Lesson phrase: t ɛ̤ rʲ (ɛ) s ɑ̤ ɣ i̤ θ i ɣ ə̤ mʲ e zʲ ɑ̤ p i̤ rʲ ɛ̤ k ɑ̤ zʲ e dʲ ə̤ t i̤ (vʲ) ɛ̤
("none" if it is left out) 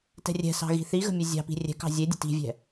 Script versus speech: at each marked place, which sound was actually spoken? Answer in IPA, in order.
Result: ɛ̤, vʲ

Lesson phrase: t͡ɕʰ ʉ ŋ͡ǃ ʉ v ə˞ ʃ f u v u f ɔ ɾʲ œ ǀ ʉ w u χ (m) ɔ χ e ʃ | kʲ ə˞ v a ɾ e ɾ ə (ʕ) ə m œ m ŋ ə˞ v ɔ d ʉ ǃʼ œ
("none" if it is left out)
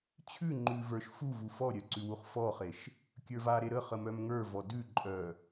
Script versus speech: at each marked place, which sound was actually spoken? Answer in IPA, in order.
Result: f, χ

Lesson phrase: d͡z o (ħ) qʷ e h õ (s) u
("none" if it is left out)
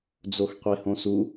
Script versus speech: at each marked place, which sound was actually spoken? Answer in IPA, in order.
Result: x, s

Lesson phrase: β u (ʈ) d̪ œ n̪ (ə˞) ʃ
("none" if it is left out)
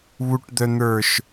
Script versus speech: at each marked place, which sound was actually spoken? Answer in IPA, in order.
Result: ʈ, ə˞

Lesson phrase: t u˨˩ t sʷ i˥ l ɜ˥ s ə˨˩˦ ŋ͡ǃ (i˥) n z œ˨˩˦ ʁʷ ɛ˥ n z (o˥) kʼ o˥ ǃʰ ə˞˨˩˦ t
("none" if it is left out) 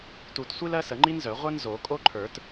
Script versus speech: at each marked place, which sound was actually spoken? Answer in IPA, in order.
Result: i˥, o˨˩˦

